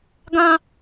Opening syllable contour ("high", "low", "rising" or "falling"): high